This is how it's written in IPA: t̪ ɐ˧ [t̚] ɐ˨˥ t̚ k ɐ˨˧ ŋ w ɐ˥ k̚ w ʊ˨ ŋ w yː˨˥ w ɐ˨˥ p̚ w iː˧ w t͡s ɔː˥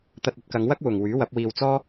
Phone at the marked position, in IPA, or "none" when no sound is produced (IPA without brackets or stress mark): t̚